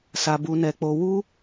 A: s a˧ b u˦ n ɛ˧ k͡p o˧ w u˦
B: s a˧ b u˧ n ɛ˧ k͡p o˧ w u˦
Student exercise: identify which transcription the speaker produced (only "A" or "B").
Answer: B